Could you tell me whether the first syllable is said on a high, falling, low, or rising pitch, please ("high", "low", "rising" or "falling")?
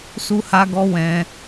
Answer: high